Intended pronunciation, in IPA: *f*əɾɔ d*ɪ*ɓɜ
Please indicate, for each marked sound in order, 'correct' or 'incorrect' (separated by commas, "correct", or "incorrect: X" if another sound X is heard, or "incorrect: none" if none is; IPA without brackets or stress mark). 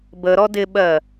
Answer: incorrect: b, correct